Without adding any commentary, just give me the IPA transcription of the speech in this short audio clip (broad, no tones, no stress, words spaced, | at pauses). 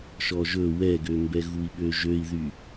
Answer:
ʃɔʒɵ wɛɡømbɛɣui̯ ɓøʒøi̯ðy